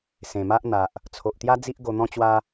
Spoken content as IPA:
s ẽ˨˩ m a˦ ʔ n̪ a˨ ʔ | t͡sʰ o˨ ʔ t̪ j a˦ d͡z i˦ ʔ ɡ o˧ n̪ ɔ̃˦ t͡ɕ w a˦

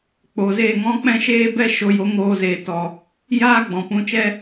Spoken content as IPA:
k͡p o˨ z eː˦˨ ŋ ɔ̃˦ k͡p ɛ̃˦ ʃ eː˦ b ɛ˦ ʃ o˧ j o˨˦ ŋ oː˧ z eː˨ t ɔ˨ | j aː˦ ɡ͡b ɔ̃˨ p ũ˧ t͡ʃ ɛ˦

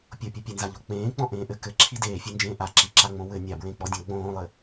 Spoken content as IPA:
pʲ o pʲ ɘ pʲ ɘ n z a ʎ o k͡p ẽː k͡p ɔ̃ ʔ ẽː ʔ ɘ k ɘ ǁʰ i d eː fʲ e n d͡ʒ ẽː ʔ a ǁ i ǁ a ŋ͡m õ w ɘ nʲ a b ɹ ẽ k͡p ɔ dʲ ɔ̃ ɡ͡b õː lˠ ɘ

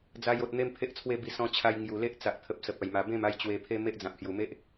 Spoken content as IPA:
d͡z a˧ j o˨ t̚ n̪ e˦ m pʰ e˦ ʔ t͡sʰ w e˥˧ b i˧ s ɔ̃˧ t͡ɕʰ a˧ j ŋ j u˨˩ l e˦ ʔ t͡s a˨ ʔ t̪ʰ ə˨ p̚ s ə˨ p̚ a˨˩ j m a˨˩ b ẽ˥˧ m a˦ j t͡ɕ w e˧ pʰ e˦ m e˦ ʔ d͡z ã˨ p̚ h j u˨˩ m e˦ ʔ

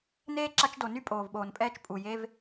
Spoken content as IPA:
n eː˥ ǁ a˦ t͡ʃ d o˨ n y˥ pʼ oː˩ v ɓ oː˩ n pʼ ɛː˦ t͡ʃ pʼ u˩ j e˦ v

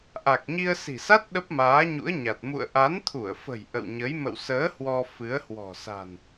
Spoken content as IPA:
ʔ a˨˩ k̚ ɲ i˧ ə̯ s i̤˨˩ s a˦˥ t̚ ɗ ə˦˥ p̚ m aː˨˦ ɲ ṵ˧˥ ə̯ ɲ a˨˩ t̚ m ṵ˧˨ ə̯ ʔ a˨˦ n t̪ʰ u˧˩ ə̯ f ə̤˨˩ j ʔ ə̰˧˨ w ɲ ə˨˦ j m ə̰˧˨ w s əː˨˦ h w ɔ˧ f ɨ˨˦ ə̯ h w ɔ̤˨˩ s a̤˨˩ n

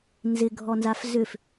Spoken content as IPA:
n z ɪ ɡʱ ɔ n z a f z ʏ f

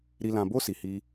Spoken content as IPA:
ɾ i˨ l ã˨ b o˧ s i˨ h i˧

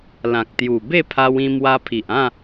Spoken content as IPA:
l ã˨ k̚ t̪ j u˨˩ b e˥˧ pʰ a˧ w ĩ˧ m w a˧ pʰ i˨ ʔ ã˥˧

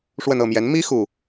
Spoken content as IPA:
ʂ w ə˥˧ n ɤ˥˩ m j ɛ˧˥ n m i˥ x u˥˩

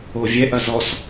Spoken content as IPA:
o vʲ ɛ ʔ ɐ z ɔ s

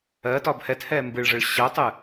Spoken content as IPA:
ɜ t ɒ b h ɛ t h ɛ m b ɨ ɭ ʐ ɯ ɭ ɕ ɜ tˤ ɨ

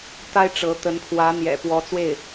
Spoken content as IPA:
t̪ a˥ ɪ̯ ʈ͡ʂ ɤ˧˥ t̪ ə˧˥ n pʰ w ä˧˥ n̪ j ɛ̰˨˩ p w ɔ˧˥ t͡s w e˥˩ ɪ̯

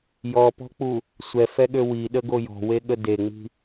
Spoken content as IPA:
j ɔ p ɔ̤ k͡p u | sʷ ɛ f ɛ ɠ ø w i ɗ ə ɡ o j ɔ̤ w e ɠ ə d e ŋ͡m i̤

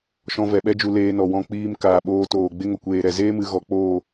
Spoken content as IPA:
ʃ ɔ̃˧ v ɛ˨ ɓ ɛ˦ d͡ʒ u˧ l eː˧ n ɔ˨ w ɔ̃˧ k͡p iː˧ m k aː˨ ɓ oː˧ t oː˨ ɡ͡b e˦ ŋ o˨ kʷ eː˨ ɾ ɛ˨ z eː˦ m ɨ˧ ɣ ɔ˧ k͡p oː˦˨

